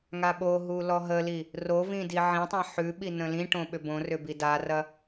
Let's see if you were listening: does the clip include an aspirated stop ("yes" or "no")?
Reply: no